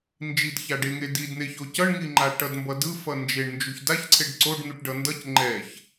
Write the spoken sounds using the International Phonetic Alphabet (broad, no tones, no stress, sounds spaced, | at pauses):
n d͡ʒ i d ç a ɖ e ŋ e d i d n̪ e ç o c ʌ ɳ ŋ i ŋ͡ǃ a ʈ ʌ d m b ʌ d ɯ f ʌ n d͡ʒ e ɳ n d͡ʒ u ç d a ç ǀʰ e ɖ ǀ o ɖ n̪ u ʈ ɖ ʌ n d ʌ c ŋ͡ǃ ɛ ç